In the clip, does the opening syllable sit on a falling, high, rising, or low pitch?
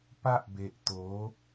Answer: high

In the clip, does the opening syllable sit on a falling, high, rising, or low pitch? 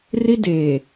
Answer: high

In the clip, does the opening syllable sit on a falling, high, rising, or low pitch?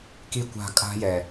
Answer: high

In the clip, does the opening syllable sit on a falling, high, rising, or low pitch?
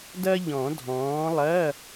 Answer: high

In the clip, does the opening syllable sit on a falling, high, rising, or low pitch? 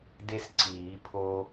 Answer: high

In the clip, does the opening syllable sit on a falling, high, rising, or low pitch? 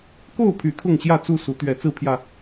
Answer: falling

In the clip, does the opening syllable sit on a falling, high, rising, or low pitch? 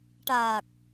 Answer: low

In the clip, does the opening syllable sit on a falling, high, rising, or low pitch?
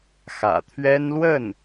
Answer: low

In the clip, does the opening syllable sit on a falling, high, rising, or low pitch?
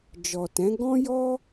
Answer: low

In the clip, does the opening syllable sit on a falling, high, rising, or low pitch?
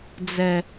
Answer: low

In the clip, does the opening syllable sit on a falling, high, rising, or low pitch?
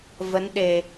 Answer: rising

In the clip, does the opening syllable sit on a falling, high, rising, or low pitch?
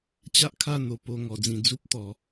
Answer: high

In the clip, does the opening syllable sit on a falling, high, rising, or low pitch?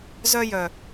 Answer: high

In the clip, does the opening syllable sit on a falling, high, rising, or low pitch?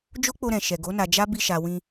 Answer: high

